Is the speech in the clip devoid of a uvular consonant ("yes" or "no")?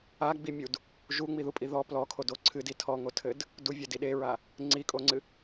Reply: yes